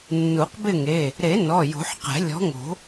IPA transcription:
nːu˨˩˦qbɪ˥˨ŋe˩˧˩ | ɾe˨˩˦ nɔ˩˧˩jo̤˨˩˦ħqɛ̤˨˩˦ lʲɔ̤˨˥ŋo̤˨˩˦

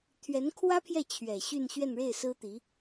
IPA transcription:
t̪ʰɥɛ˧˥nkʰwä˥pʰjɛ˥˩ t͡ɕʰɥɛ˨˩ ɕy˥˧nɕɥɛ˥˧nɻe˥˩ɪ̯ sɹ̩˥t̪i˧˥

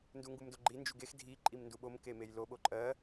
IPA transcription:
nduŋɡumdoɡ͡ǃi nd͡ʒuɡex dʱi ǃʼimnduɓom kemejlo ɓoǃʼɜ

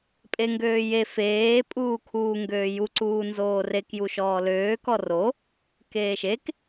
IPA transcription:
pʼeŋɡøːje feː pʼuːkʰuːŋɡøːju ǀuːnzoːrek juʃɔːløː kɔro | keːʃek

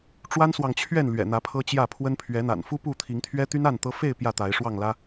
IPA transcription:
ʈ͡ʂwa˦nswɑ˨ŋt͡ɕʰɥɛ˥˨n lɥɛ̰˨˩ n̪ä˨˦pʰɤ˦t͡ɕjä˥˨pʰwə˦n pʰɥɛ˨˦n̪a̰˨˩nfu˦ pu˥˨t̪ʰi˨˦ŋ t̪ʰɥɛ˦t̪y˦n a˥˨n t̪ɤ˦ fe˥˨ɪ̯ pjä˥˨t̪a˨˦ɪ̯ʂwɑ˥˨ŋlä˦

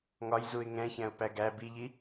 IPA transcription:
ŋɒj zuɪ̯ŋɛ̃çæ̃ʊ̯ pæɡæ biʎi

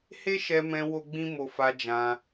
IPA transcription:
he˦ʃɛ˧mɛ̃˧ wo˦ɡ͡bĩ˦ mo˧ fa˧ d͡ʒã˧

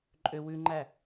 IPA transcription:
ǃʼø wʉŋ͡ǃæ

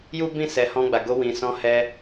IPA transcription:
ju˦bĩ˦˨sɛ˨ hɔ̃˧ɡ͡ba˨ɡo˧ wĩ˨sɔ̃˧hɛ˧

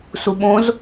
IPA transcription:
suɓõz

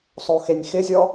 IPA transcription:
sˤoxenʲxɪzʲɔ

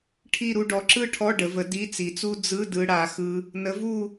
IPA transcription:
ʈʰi˥˧ɾu˥˧ ɖɔ˨˥ǁɯ˥˧ʈʰɔ˧˥˧ ɖə˩˧və˨˥ di˧˥˧t͡si˩˧t͡su˥ d͡zɯ˧˥˧dɯ˧ ɽa˩˧xɯ˧ | nə˨˥vu˥˧

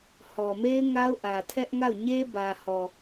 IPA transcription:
hɔ˨me˦ɪ̯ ŋa˦ʊ̯ʔä˨tʰɛ˦ʔŋa˦˨ʊ̯ ɲe˦bä˨hɔ˨

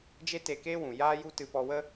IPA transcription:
d͡ʒe˦ te˧keː˦wũ˨ jaː˦ju˦ tɨ˧pɔ˧wə˦

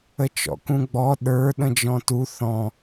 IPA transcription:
ət͡ʃɔ̰kũɡ͡bɔ ɗə˞ ɗə̃d͡ʒɔ̃tu θɔ̃

